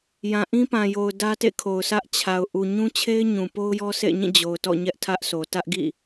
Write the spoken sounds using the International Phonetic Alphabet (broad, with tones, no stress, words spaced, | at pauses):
jã˨ʔĩ˦pã˨jo˨ʊ̯ dä˦tḛ˦˨kʰo˨ʊ̯ sä˦ʔ t͡ɕʰa˨ʊ̯ ʔu˨ɲũ˦t͡ɕʰe˦ɪ̯ ɲũ˨ po˦ʊ̯jɔ˦sḛ˦˨ɪ̯ɲĩ˦˨ d͡ʑo˨ʊ̯tɔ̰˦˨ ɲɛ˦ʔtʰä˦ʔso˨ tä˦ʔɡḭ˦˨